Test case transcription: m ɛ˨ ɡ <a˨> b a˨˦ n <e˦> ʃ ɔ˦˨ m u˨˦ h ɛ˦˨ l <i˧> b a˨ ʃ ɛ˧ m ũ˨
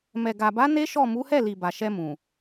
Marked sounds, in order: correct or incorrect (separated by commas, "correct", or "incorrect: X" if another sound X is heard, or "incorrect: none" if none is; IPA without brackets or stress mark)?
correct, correct, incorrect: i˨